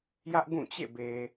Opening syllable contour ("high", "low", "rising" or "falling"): high